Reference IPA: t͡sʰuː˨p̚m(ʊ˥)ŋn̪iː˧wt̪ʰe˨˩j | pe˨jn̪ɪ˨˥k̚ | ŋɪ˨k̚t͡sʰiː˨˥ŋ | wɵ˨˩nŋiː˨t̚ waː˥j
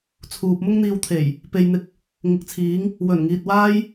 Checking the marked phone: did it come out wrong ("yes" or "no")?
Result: no